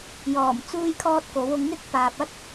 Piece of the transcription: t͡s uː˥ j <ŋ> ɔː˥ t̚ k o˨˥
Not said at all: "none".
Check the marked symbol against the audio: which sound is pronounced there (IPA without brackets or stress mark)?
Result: kʰ